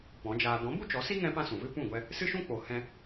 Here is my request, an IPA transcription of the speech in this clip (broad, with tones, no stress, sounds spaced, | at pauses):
p ɔ̃˨˦ d͡ʒ aː˧ d ɔ̃˨˦ b u˦ t͡ʃ ɔ˨˦ s i˦ ŋ ɛ̃˦ p ã˦ s ũ˨ v ɨ˦ p ũ˦˨ ɡʷ ɛ˧ | s ɨ˦ ʃ ũ˦ k͡p o˨ h ɛ̃˧